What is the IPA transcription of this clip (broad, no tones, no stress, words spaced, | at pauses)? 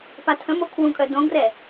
patʰə̃mo kʰwũkʼœ dõɡrɛ